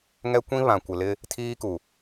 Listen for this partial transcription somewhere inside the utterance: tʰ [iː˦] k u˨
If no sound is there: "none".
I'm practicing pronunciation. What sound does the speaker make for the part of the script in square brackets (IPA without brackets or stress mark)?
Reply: iː˦